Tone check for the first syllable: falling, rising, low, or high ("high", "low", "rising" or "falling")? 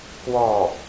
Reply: falling